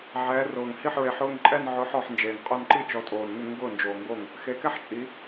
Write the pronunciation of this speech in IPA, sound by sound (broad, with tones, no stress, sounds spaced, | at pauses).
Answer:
ʕ ɛː˨˦ r ʊː˨˩ ŋ h i˥˩ ħ ɹ e˨˦ ħ ʊː˥˧ ŋ ǃʼ ɛ˥˧ n ʕ ʊː˨˦ ħ ɔ˨˩ ħ n d͡ʒ eː˨˩ ŋ qʼ ʊː˥˧ n ǃ i˥˧ t͡ʃ ɔ˨˦ tʼ oː˨˩ n ŋ ɪ˥˩ ŋ ɡ ʊː˥˩ n d͡ʒ oː˨˩ ŋ ɡ o˥˩ ŋ | x e˨˦ k ɛ˥˧ ħ t͡ʃʼ i˨˦